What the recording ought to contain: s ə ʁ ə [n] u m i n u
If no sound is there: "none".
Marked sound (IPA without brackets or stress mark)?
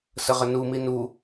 n